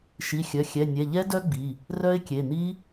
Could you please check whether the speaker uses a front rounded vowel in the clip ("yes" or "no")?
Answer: yes